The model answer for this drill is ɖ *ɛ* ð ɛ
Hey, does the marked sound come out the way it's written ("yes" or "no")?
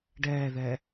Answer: no